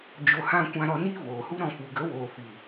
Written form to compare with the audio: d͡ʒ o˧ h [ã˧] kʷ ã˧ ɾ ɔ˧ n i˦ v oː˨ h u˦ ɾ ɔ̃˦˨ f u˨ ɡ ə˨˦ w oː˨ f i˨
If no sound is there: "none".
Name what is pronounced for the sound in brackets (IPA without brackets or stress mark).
ã˧